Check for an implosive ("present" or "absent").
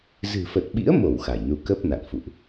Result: present